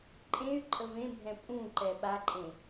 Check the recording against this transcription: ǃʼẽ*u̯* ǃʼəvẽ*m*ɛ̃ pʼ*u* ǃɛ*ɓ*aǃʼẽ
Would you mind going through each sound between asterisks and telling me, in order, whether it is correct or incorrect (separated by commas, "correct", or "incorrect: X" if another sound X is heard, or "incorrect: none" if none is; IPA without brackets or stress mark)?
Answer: incorrect: y̯, incorrect: bʱ, incorrect: ũ, correct